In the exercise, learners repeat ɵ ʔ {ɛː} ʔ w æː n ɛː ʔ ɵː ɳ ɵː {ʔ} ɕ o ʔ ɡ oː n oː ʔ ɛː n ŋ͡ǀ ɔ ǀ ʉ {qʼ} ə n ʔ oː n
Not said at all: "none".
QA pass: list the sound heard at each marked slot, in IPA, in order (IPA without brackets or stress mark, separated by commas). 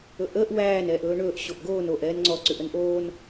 əː, ʔ, ʔ